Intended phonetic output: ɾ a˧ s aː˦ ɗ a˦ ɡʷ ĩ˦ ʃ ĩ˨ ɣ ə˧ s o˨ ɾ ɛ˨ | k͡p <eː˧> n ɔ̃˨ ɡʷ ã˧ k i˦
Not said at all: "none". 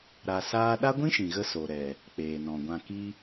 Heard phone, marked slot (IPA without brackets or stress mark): eː˨